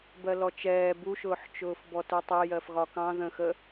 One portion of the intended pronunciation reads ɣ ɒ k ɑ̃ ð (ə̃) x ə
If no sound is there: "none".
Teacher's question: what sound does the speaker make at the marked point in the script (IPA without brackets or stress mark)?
ə̃